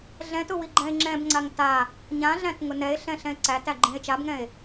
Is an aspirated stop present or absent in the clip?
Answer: absent